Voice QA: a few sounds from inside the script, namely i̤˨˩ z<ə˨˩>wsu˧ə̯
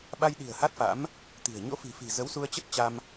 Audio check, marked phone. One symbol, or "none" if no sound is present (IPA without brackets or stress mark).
ə˨˦